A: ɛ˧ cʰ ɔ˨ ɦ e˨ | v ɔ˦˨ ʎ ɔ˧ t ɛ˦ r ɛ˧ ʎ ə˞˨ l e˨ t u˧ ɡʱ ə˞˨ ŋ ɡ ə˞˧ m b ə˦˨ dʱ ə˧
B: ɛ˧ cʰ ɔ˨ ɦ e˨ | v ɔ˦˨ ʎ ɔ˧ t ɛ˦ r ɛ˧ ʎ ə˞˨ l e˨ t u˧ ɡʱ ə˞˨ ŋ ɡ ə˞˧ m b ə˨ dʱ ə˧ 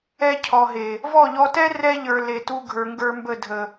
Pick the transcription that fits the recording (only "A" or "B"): A